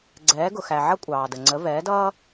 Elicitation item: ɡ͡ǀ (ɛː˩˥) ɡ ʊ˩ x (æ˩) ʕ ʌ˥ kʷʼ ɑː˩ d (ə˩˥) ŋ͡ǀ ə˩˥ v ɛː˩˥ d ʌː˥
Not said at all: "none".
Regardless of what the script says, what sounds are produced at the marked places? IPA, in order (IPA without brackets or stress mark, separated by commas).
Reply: ɛː˩˥, æ˩, ə˩